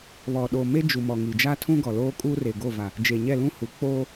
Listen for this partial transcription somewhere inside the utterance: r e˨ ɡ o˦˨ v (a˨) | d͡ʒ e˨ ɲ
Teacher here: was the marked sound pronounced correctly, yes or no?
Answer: yes